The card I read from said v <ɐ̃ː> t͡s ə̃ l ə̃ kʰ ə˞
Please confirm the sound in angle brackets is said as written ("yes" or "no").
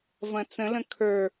no